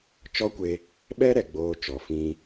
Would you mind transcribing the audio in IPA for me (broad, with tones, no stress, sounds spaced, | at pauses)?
t͡ʃ ɔ˦ kʷ e˧ | ɓ ɛ˦ ɾ ɛ˨ ɡ͡b oː˧ t͡ʃ ɔ˨ f ĩ˧